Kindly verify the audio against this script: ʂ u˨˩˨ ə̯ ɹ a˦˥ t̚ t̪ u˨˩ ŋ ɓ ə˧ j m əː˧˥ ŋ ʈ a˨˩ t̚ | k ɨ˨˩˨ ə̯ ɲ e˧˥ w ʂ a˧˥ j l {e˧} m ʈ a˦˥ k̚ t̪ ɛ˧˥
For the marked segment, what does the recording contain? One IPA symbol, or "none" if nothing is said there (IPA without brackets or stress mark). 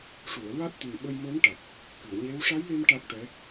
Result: e˧